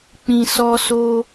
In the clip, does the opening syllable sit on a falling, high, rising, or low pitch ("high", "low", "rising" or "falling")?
low